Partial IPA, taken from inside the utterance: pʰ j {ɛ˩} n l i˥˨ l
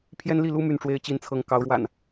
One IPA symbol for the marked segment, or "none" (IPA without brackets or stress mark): ɛ˦